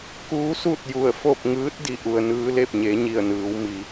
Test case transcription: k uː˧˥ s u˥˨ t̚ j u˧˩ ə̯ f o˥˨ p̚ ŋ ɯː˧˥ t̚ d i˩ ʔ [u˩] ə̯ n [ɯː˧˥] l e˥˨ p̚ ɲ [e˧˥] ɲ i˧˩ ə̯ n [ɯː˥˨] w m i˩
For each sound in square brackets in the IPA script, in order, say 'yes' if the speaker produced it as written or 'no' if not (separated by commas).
yes, yes, no, no